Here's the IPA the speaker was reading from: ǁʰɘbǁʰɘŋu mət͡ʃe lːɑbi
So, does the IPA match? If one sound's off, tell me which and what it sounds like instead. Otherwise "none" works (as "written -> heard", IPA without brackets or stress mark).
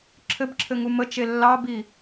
none